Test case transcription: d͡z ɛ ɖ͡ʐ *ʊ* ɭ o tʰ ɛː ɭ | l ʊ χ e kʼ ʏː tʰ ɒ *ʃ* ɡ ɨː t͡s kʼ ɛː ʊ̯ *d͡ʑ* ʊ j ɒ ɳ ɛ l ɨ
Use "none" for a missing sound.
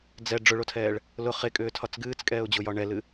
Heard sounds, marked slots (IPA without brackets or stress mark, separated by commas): ʊ, t͡s, d͡ʑ